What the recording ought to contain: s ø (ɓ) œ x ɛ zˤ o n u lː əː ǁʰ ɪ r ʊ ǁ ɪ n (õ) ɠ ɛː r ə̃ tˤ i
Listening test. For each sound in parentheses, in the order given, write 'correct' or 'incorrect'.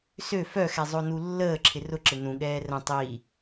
incorrect, incorrect

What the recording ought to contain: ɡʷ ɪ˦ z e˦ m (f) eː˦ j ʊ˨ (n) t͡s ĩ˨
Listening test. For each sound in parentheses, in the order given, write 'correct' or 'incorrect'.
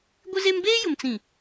incorrect, incorrect

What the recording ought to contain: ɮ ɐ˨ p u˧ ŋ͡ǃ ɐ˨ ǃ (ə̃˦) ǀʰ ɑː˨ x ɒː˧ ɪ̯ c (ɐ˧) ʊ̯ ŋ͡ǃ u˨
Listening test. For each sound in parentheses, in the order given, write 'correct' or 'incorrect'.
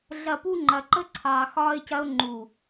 incorrect, correct

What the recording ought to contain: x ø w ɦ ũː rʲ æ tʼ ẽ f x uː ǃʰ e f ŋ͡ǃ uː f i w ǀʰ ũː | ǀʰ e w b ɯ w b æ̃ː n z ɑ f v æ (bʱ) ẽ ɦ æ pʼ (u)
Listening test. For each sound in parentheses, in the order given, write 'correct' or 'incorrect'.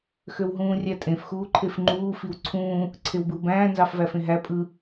incorrect, incorrect

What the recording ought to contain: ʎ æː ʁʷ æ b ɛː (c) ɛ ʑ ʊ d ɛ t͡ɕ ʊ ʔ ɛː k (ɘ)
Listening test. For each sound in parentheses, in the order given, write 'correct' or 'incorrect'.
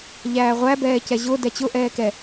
correct, incorrect

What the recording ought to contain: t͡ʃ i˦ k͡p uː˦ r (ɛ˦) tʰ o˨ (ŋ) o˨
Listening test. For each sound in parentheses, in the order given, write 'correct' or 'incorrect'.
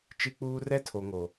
correct, correct

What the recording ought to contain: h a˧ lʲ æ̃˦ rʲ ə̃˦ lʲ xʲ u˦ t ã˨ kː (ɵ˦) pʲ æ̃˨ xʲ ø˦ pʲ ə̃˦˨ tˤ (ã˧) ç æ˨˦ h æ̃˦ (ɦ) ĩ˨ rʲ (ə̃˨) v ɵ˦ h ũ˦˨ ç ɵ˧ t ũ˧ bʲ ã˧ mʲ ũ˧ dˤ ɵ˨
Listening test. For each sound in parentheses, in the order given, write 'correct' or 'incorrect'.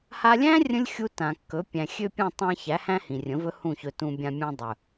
incorrect, correct, incorrect, incorrect

